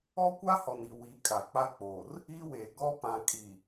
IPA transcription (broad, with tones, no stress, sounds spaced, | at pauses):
ɔ˦ kʷ a˦ h ɔ˨ n i˨ w i˨˦ kʼ a˨ k͡p a˦ k͡p oː˨ r | iː˦ w eː˨ ɡ ɔ˦ p ã˨ kʼ i˨